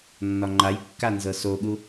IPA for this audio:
nː ɒ ŋ͡ǃ a j kː a n z ɤ s o ɠ u

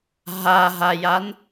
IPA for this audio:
ɦ a ɦ a j a n

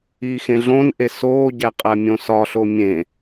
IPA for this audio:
iː x ẽ ɮ õ n ʔ e s oː ɟ æ qʼ æ mʲ õ s ɒ ɬ o mʲ ẽ

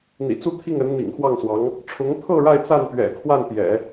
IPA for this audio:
n̪ ḭ˨˩ t͡s u˥˧ t̪ʰ i˥˩ ŋ ə˧˥ n n̪ ḭ˨˩ ŋ x w ɑ˥˩ ŋ s w ɑ˧˥ ŋ | ʈ͡ʂʰ ʊ˧˥ ŋ t̪ʰ ɤ˥˧ ɻ a˥˧ ɪ̯ t͡s a˥˩ n p ɥ ɛ̰˨˩ kʰ w a˥˩ n p j ɛ̰˨˩˦

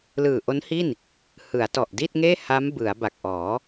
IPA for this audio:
l ɯː˨˩ ʔ o˦˥ n h i˥˩ n | h ɯ˩˦ a̯ t ɔ˨˩ ʔ d i˥˩ t̚ ŋ eː˥˩ h a˦˥ m b ɯ˩˦ a̯ b a˨˩ k̚ ʔ ɔː˩˦

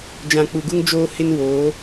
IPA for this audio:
d͡ʒ ã˨ k͡p u˨ ɡ u˦ ŋ d͡ʒ oː˦ h ɪ˦ n w oː˨˦

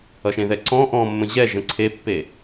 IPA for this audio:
ʌ ʃ ẽ ð ɛ ǀ ɔ̃ ʔ ɔ̃ mː ə̃ ʑ ɛ ʒ ə̃ ǀʰ e pː e

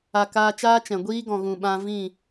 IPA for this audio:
a˨ k aː˧ t͡ʃ aː˦ t͡ʃ ɛ̃˨ ɡʷ iː˦ ɡ ɔ̃˨ ɣ ũ˨ ɓ ã˧ v ĩ˦˨

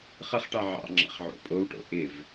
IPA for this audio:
χ ə χ ʈ ɑ ʕ ɑ̰ ŋ͡ǁ ɑ̰ χ ʕ o̰ pʼ o w ʈ o̰ ʔ ɪ v

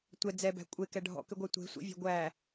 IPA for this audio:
tʷ ɛ d͡z ɛ b æ̤ kʷʼ e k ɛ ɖʱ ɔ̰ k ʏ ɡʷ æ tʷ e̤ sʷ ḭ vʲ æ̤ ɡʷ æ

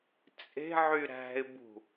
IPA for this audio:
t͡sʼ e̤ ʕ y ɾ æ̤ ɪ̯ b ṳ

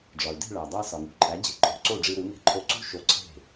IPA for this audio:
ɖ͡ʐ ɒ˩ y̯ d e̤˥˩ ɭ æ˩ dˤ æ˧ s ɒ˩ ŋ ṳ˩ ǃʼ æ˩˥ d͡ʑ e̤˧ ǃʼ o̤˧ ǀ o˥˩ ɖ͡ʐ i˧ ɾ u˩˥ ŋ e̤˧ ǃʰ o˧ ǀ ṳ˥ ʃ o˧ ǀʰ e̤˥˩

